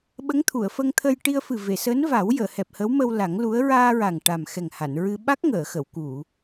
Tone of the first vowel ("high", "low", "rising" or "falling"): rising